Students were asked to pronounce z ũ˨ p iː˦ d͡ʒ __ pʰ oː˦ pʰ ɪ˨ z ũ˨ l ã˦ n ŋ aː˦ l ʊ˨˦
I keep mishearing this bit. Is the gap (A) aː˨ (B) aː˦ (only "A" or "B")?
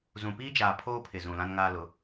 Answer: A